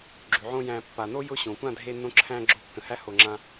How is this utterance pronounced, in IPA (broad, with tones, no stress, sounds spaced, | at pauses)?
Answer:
ɡ͡ǁ ʉ˨ ʕ õ˦ j æ̃˧ pː a˨ n o˦ j ʊ˦ ɕ õ˨ kʷ ã˦˨ dʱ e˧ nː õ˧ ǁʰ æ̃˧ ɡ͡ǁ o˧ kː ə̃˨ h æ˦ h o˨ ŋ͡ǁ ã˧